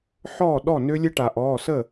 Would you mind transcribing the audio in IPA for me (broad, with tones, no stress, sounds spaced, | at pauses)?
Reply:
ħ ɔː˥˩ ɗ ɔ˥˩ n ø˦˥ lʲ ə˦˥ ʈ a˩ ʔ ɔː˩˧˩ s ə˥˩